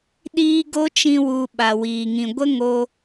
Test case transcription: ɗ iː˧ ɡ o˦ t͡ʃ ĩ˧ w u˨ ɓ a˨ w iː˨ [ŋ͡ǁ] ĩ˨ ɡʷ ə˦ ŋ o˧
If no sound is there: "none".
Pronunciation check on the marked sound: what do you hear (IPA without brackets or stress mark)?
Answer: ŋ